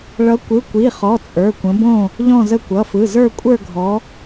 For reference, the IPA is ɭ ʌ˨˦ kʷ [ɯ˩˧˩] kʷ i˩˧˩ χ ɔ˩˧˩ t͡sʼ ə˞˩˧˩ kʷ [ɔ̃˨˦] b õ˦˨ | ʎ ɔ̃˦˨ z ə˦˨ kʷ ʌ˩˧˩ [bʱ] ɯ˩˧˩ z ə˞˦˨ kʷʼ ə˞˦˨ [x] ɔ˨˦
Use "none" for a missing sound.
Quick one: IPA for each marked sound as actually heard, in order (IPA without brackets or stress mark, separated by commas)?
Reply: ɯ˩˧˩, ə̃˨˦, f, ɡʱ